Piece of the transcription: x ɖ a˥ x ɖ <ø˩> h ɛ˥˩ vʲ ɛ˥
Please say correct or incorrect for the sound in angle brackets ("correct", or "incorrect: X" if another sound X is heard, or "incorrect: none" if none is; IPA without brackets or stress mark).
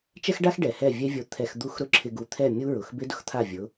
incorrect: ɛ˩